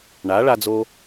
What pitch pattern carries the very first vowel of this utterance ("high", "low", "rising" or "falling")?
rising